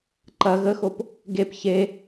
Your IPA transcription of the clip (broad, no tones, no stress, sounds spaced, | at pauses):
ǃ ɐ ɣ ə x o p | ɡ e p ç e